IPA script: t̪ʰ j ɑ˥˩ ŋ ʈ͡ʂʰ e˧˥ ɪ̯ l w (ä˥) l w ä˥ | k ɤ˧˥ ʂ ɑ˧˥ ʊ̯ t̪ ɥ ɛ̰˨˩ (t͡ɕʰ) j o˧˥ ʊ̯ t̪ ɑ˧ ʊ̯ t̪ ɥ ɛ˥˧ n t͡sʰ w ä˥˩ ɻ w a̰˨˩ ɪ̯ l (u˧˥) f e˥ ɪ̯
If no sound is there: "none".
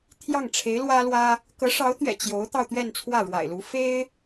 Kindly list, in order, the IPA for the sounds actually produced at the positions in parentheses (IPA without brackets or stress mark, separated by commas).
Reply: ä˥, t͡ɕ, u˧˥